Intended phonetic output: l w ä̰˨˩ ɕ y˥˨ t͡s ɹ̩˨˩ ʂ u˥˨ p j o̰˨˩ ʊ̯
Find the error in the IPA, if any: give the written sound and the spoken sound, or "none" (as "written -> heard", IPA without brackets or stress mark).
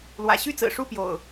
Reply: none